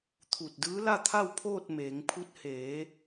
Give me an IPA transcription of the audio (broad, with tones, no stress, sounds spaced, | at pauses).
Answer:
t̪ʰ u˧˩ t̚ d ɯː˧˥ l a˥˨ t̪ʰ a˥˨ w pʰ oː˥˨ t̚ m eː˩˧ ŋ pʰ u˧ t̚ h eː˩˧